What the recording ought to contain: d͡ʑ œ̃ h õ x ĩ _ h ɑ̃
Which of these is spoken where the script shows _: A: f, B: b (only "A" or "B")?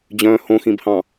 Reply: B